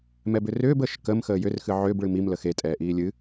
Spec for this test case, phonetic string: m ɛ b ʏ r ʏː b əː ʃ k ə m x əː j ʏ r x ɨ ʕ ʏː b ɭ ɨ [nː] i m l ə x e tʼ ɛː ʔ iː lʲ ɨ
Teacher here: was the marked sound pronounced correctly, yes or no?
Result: no